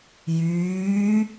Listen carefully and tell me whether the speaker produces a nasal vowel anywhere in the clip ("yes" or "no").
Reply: no